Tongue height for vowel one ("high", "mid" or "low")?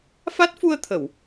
low